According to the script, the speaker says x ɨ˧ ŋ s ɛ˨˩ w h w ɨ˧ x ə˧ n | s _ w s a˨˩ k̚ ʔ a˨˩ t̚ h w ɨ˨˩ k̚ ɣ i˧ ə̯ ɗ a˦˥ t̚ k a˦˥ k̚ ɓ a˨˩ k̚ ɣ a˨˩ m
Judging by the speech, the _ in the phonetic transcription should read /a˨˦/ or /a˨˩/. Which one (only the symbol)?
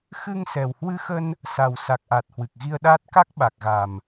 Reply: a˨˩